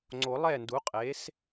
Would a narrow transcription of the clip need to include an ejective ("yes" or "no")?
yes